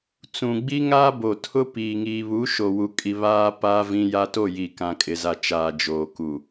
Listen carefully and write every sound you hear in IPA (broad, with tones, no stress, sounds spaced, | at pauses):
t͡s ũ˨ ɡ͡b i˦ ŋ aː˦ b o˨ tʰ ʊ˦ p iː˨ ŋ iː˨ β u˨˦ ʃ o˨ w u˦ kʼ i˦ β aː˦ p a˦ v ĩ˦ j a˦ t o˦˨ j i˨ k ã˨ kʼ ɪ˨ z a˨ t͡ʃ aː˨ d͡ʒ oː˨ k u˨